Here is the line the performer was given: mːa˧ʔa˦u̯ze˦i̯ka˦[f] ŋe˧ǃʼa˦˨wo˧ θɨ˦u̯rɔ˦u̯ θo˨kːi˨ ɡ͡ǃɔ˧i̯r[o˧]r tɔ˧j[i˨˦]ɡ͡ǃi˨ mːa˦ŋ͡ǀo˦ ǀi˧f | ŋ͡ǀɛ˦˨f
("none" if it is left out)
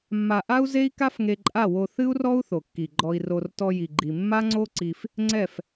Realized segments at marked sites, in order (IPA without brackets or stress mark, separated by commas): f, o˧, i˨